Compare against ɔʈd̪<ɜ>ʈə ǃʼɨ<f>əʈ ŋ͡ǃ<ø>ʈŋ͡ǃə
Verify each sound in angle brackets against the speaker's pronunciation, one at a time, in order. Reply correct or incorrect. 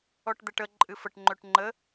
incorrect: ɛ, correct, correct

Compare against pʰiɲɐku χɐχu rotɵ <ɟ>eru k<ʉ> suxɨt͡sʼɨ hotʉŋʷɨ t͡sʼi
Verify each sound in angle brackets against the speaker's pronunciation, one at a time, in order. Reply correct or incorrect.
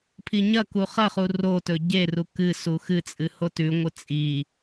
correct, incorrect: ɨ

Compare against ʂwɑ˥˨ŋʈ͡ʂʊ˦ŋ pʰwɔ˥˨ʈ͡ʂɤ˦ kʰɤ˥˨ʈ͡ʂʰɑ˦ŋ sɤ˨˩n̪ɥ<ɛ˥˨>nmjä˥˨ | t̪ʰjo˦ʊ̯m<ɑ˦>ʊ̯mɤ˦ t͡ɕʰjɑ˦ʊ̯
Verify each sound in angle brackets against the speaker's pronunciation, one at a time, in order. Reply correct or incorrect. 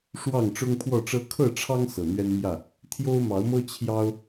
incorrect: ɛ˦, incorrect: ɑ˨˦

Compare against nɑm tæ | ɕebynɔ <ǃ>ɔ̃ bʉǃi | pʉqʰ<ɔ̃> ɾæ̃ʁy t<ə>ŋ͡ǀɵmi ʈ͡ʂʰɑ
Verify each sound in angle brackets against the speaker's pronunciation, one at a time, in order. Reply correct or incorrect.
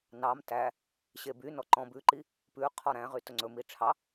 correct, incorrect: ɔ, incorrect: ɵ

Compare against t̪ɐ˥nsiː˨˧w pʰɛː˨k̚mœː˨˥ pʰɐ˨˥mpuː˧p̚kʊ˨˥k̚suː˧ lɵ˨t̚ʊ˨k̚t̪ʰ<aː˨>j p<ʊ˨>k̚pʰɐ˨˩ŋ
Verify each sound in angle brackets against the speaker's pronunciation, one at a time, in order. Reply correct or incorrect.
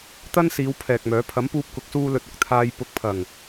incorrect: aː˧, incorrect: ʊ˨˥

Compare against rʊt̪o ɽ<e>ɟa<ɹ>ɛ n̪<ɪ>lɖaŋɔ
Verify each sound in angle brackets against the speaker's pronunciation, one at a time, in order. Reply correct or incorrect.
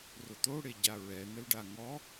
correct, correct, incorrect: ə

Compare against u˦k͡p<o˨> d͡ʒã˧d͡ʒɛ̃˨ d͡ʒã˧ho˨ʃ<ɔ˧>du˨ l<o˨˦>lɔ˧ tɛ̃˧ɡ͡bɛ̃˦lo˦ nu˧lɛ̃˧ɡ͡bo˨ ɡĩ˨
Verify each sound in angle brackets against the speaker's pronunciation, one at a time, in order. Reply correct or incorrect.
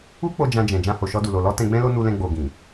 incorrect: o˧, correct, incorrect: o˨

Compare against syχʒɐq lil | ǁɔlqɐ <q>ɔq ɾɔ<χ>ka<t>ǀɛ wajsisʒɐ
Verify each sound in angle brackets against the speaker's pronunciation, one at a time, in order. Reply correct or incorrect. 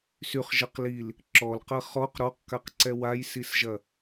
incorrect: χ, incorrect: q, incorrect: q

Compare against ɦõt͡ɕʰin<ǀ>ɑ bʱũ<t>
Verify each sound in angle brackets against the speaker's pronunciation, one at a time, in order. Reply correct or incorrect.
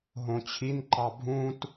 incorrect: ǃ, correct

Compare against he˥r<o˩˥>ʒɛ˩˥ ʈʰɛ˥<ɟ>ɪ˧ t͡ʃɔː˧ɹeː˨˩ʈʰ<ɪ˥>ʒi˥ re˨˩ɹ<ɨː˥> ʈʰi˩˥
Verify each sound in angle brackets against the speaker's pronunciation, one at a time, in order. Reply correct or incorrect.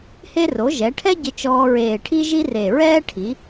correct, correct, incorrect: i˥, incorrect: ɛː˥

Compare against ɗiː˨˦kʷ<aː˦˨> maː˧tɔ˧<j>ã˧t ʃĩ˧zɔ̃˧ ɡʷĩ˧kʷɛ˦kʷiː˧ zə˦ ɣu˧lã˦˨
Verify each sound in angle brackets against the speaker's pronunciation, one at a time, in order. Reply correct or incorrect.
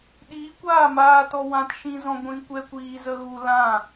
correct, incorrect: w

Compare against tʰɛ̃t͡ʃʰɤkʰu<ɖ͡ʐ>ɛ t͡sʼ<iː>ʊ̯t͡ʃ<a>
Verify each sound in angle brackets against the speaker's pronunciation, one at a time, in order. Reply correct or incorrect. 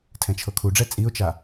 correct, incorrect: i, correct

